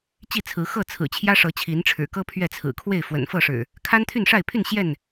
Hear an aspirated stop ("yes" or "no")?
yes